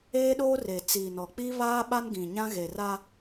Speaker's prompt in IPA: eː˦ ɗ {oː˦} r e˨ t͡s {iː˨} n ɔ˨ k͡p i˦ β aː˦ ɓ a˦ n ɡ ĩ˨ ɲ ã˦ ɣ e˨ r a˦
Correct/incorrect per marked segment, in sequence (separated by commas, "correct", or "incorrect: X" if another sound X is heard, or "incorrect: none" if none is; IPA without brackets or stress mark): correct, correct